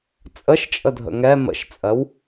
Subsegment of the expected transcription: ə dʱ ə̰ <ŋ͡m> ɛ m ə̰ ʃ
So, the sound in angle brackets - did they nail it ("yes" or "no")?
no